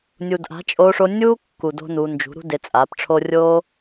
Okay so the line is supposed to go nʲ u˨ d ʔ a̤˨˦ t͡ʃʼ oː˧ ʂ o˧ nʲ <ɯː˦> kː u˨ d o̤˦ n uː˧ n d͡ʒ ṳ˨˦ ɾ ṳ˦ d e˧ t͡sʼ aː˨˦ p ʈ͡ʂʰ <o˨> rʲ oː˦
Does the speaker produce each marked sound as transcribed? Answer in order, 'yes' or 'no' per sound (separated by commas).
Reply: no, no